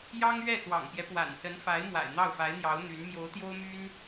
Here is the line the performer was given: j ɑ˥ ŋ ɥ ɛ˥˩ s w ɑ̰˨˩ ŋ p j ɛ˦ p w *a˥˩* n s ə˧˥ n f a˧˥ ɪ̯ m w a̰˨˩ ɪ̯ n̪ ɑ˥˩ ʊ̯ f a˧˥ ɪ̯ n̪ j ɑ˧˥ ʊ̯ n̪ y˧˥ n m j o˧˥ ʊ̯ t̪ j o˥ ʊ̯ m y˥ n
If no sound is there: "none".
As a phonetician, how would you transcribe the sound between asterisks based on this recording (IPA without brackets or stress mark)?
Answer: a̰˨˩